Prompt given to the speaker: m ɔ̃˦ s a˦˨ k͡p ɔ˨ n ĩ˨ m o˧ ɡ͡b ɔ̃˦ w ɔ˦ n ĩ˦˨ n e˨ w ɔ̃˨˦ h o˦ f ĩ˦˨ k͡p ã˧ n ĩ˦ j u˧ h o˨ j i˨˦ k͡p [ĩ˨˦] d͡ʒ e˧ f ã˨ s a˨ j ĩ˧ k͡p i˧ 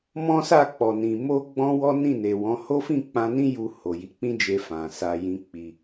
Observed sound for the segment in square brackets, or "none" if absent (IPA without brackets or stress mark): ĩ˦